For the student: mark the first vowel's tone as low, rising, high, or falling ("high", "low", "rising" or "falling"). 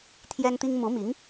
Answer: high